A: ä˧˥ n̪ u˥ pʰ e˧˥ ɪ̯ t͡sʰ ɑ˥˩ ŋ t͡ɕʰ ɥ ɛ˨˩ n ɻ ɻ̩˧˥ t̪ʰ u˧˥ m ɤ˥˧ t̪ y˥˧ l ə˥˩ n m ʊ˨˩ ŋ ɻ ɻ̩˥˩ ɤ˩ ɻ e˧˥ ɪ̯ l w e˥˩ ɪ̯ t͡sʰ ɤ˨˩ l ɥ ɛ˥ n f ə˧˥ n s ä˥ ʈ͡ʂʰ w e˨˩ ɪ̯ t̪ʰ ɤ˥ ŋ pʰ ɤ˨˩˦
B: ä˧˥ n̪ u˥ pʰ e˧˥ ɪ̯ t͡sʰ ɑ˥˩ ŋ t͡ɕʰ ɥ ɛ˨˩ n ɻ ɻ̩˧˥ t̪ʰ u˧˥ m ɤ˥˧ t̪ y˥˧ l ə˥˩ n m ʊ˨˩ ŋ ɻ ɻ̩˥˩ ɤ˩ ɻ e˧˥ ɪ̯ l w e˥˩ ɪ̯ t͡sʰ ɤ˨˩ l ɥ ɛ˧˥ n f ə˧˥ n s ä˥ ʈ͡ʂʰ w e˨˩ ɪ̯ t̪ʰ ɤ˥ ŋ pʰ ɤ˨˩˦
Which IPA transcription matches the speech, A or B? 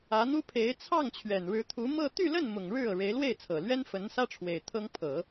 A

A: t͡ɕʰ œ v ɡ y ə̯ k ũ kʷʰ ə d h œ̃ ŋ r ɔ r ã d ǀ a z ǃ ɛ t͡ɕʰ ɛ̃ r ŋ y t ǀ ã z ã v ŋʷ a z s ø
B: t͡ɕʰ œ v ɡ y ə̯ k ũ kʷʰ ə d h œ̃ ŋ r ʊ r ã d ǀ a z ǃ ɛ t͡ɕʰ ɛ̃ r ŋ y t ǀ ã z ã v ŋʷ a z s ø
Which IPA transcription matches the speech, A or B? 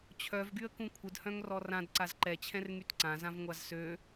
A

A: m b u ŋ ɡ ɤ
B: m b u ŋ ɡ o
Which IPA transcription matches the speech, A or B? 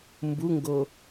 B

